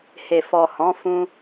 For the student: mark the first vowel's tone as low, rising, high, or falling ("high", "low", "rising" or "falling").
low